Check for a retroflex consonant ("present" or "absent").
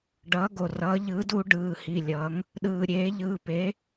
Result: present